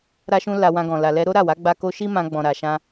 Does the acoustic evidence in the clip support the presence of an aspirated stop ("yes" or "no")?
no